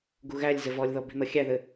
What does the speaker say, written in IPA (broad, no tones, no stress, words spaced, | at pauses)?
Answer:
ɡuɣælʲzɘ vɔlʲðɔ bi̤n̪ʌxʲæðɘ